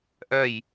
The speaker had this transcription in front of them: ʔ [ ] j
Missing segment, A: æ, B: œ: B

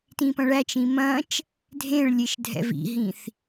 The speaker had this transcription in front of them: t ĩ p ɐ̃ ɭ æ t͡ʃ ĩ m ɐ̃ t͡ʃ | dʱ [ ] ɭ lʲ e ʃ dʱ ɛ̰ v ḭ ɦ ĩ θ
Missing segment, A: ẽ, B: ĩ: A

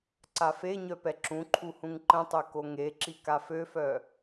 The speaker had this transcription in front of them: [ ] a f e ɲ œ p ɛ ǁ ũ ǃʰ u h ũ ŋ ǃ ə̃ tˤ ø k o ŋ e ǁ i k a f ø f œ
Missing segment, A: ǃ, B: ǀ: B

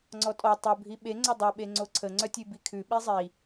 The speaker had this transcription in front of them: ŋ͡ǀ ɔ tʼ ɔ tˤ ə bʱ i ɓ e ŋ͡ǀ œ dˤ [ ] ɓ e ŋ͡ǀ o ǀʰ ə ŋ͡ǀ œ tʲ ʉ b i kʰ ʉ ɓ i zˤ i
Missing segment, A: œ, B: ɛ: A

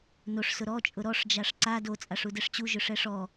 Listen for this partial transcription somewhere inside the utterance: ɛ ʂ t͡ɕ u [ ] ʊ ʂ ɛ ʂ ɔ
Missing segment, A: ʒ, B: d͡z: A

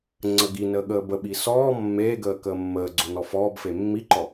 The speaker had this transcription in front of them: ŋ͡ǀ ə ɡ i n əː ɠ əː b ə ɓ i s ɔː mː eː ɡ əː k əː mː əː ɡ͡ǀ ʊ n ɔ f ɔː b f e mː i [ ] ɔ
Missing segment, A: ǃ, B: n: A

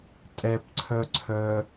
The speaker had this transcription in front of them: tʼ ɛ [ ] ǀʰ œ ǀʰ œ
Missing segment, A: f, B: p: B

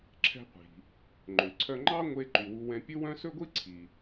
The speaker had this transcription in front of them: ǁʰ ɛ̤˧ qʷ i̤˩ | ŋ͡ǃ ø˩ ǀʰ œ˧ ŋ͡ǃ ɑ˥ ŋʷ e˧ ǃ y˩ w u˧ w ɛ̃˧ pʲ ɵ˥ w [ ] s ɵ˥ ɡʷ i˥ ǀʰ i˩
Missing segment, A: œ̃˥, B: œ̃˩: A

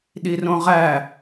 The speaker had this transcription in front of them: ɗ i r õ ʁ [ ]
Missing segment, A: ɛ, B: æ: B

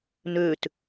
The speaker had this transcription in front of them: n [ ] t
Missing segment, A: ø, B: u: A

